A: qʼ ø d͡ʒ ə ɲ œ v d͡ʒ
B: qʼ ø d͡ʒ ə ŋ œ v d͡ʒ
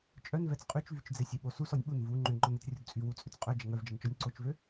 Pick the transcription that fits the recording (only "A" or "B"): B